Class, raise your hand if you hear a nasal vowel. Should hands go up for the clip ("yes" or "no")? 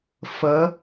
no